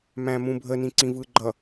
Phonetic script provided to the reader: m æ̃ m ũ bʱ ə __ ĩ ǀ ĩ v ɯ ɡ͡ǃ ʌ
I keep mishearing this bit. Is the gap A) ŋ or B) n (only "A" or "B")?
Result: B